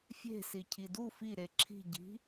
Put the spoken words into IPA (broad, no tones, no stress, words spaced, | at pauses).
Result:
fʲe̤si cʰidu fi ɾeǁʰi̤ ɟi̤